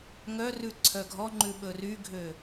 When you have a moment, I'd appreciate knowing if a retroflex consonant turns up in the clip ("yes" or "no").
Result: no